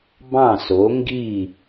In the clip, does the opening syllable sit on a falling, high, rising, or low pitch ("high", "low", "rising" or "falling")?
falling